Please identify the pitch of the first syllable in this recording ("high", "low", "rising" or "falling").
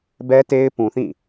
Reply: high